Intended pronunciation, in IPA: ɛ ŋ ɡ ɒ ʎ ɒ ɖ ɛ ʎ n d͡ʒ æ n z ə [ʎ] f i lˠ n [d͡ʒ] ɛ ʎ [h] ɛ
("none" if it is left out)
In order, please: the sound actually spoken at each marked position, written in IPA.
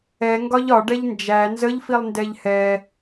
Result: ʎ, d, h

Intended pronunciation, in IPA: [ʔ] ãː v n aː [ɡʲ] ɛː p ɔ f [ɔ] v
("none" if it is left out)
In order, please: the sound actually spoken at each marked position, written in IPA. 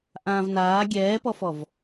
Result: ʔ, ɡʲ, ɔ

